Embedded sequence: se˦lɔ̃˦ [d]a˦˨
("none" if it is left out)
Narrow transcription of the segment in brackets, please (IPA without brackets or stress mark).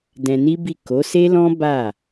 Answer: b